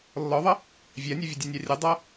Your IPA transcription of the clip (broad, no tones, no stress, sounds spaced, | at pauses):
lː ɔ ðˤ ʌ | vʲ æ nʲ ɛ vʲ ə dʲ ɛ nʲ ɑ rʲ ɛ dˤ ʌ